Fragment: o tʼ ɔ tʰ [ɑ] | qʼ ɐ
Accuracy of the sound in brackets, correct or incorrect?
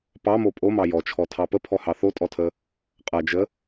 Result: incorrect